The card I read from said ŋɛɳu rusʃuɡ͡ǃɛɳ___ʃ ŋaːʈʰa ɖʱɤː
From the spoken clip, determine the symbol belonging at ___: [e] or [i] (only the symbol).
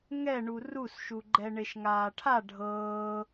e